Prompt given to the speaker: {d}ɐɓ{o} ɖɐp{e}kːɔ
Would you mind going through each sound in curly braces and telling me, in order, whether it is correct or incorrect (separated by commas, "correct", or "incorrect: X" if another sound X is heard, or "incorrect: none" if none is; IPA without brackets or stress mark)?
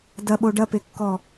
correct, correct, correct